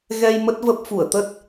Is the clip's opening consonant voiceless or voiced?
voiced